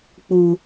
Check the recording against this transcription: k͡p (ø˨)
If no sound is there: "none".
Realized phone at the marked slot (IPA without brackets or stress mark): u˨